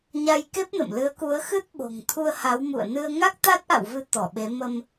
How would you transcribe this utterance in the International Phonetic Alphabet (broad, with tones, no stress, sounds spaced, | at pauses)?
ɲ a˧ j k e˦˥ p̚ n ə̰˧˨ m l ɨ˨˦ ə̯ k u˨˦ ə̯ x ɨ˦˥ t̚ ɓ o̤˨˩ ŋ t̪ʰ u˧ ə̯ h a˨˦ w m ṵ˧˨ ə̯ n ɨ˧ ə̯ ŋ a˦˥ k̚ t̪ a˦˥ t̚ ʔ a̰˧˨ w v ɨ˨˦ t̪ ɔ˧˩ ɓ e˨˦ m ə˧ m